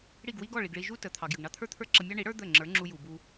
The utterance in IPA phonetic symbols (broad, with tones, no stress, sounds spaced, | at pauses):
ɽ i˥˩ ɡ w i˥ ɡ ɔ˥˩ ɭ i˩ ɡ ɭ i˧ ʒ u˥ t ə˩ t̪ʰ ɑ˩ ɡ j ə˩ ɡ ɳ ɑ˥ t̪ʰ ə˞˥ t̪ʰ ə˞˥ ǁ ə˧ mʲ ɑ˥ ɳ i˩˥ ɽ ə˞˥ d̪ ə˥˩ ŋ͡ǁ ə˞˩˥ ŋ͡ǁ u˧ j u˩ b u˧